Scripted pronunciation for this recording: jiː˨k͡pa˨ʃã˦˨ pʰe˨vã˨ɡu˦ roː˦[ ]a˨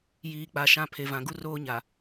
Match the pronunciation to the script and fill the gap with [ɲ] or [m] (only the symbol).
ɲ